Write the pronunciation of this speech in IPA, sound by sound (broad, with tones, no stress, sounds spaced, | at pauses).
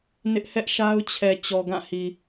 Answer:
n ɪ˦ ʔ h ɛ˦ ʔ ʃ a˦ ʊ̯ t͡ɕʰ ɛ˨ t͡ɕ ɔ˨ ɡ ã˦˨ h i˨